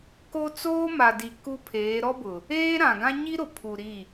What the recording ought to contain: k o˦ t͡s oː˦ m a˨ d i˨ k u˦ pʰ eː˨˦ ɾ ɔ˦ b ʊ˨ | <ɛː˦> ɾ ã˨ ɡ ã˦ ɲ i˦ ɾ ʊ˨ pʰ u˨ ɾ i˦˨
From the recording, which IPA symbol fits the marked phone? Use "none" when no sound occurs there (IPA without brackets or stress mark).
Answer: eː˦